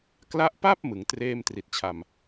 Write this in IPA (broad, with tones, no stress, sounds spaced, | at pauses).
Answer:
k l a˦˥ ʔ p a˥˩ p̚ m ɯ˩˦ ŋ t r eː˥˩ m t r i˨˩ t̚ t͡ɕʰ a˨˩ m